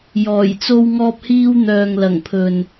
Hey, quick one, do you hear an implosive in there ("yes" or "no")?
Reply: no